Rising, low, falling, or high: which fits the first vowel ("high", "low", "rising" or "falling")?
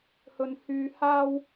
high